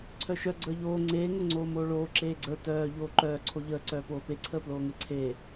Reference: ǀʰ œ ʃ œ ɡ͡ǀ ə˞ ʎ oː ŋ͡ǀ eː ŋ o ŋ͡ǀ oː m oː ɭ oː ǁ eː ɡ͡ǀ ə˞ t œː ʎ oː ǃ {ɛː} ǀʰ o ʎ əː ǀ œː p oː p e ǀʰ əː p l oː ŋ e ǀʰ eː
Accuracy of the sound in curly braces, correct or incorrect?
incorrect: œː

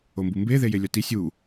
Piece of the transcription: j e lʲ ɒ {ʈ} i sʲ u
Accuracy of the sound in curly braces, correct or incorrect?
incorrect: t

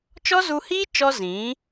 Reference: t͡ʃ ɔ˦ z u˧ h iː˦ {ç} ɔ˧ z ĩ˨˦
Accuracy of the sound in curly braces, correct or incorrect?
incorrect: t͡ʃ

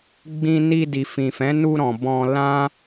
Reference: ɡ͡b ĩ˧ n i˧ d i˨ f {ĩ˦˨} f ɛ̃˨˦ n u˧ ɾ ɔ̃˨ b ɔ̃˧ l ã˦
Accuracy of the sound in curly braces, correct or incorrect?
incorrect: ĩ˨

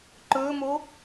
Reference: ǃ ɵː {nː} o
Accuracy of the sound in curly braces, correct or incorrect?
incorrect: m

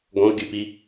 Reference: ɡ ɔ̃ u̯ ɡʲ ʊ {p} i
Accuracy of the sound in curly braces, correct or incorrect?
correct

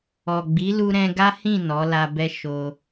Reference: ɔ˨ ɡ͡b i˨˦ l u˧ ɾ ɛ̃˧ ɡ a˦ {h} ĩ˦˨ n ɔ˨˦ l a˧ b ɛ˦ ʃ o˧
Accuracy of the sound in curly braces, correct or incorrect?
correct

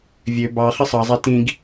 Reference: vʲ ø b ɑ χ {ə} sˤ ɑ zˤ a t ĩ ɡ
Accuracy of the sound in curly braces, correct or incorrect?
correct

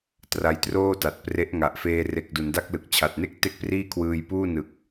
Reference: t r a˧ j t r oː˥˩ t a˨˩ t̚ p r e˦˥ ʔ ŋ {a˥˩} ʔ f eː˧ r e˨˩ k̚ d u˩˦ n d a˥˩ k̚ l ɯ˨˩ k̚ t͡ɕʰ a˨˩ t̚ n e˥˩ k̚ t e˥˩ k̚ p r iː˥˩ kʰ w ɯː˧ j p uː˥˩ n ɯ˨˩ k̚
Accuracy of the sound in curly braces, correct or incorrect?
incorrect: a˨˩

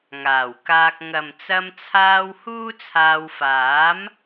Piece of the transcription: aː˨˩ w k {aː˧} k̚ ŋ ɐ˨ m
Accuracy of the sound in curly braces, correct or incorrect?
correct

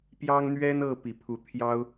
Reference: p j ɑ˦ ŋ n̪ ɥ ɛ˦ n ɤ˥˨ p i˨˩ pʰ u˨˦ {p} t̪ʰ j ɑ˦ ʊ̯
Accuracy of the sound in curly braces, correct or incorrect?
incorrect: none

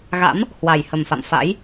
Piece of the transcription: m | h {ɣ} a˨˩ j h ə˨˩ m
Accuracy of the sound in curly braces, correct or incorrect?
incorrect: w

